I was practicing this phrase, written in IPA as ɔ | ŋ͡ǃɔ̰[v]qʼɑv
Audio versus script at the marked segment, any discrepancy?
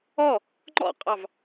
yes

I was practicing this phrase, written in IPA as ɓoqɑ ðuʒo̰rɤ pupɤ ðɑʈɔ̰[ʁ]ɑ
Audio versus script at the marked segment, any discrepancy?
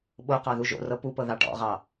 no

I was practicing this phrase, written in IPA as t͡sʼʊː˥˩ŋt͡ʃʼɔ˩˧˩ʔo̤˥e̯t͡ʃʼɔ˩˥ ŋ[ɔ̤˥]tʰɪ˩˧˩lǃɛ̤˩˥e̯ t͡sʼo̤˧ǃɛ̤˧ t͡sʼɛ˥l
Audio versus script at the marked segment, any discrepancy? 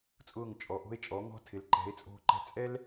no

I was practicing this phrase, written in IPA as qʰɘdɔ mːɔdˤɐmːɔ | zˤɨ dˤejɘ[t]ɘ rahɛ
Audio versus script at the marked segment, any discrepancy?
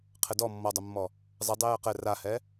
yes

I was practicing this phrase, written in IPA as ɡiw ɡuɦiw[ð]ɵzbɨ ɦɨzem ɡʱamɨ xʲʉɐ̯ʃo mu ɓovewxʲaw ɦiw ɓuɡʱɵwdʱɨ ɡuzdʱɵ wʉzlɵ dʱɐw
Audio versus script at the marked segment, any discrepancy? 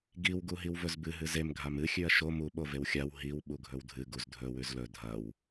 yes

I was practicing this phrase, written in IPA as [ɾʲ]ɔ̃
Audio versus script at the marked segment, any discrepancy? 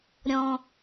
no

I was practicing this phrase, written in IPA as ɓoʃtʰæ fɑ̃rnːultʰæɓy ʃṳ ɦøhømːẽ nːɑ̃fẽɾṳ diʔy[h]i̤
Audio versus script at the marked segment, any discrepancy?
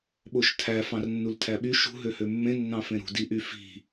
yes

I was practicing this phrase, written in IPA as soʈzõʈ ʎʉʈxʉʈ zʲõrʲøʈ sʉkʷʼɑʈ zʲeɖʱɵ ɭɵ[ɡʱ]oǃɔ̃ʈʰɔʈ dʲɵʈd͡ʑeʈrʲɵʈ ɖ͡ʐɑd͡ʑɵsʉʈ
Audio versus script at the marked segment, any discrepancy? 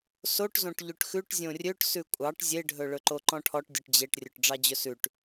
yes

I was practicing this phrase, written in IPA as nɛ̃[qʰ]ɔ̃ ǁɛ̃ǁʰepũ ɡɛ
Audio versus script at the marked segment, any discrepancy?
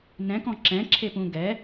yes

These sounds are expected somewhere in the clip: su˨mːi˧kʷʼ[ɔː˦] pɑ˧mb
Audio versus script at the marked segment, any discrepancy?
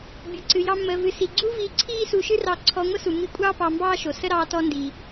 yes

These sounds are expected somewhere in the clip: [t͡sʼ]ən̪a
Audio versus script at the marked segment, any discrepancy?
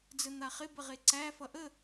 yes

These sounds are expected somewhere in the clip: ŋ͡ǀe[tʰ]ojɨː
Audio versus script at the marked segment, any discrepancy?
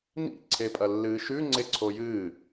yes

